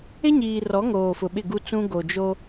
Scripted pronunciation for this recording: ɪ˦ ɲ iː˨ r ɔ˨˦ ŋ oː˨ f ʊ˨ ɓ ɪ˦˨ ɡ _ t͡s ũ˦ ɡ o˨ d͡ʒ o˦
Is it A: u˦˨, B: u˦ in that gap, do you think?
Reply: B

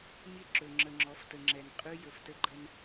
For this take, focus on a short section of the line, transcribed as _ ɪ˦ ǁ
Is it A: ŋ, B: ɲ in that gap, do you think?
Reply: B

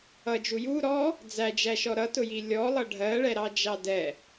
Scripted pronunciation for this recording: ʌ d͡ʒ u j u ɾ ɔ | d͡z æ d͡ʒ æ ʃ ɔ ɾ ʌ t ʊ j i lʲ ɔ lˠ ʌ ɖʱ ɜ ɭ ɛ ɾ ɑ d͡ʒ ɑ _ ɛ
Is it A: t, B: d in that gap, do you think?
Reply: B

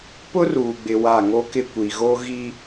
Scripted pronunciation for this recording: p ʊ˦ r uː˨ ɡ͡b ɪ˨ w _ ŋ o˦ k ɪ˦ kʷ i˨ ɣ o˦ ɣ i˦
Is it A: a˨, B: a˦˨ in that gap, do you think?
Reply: B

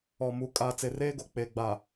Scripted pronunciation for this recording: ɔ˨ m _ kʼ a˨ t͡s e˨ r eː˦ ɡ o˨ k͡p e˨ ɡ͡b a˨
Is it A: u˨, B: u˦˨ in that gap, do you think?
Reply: A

